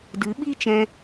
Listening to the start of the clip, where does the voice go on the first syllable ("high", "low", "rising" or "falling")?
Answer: rising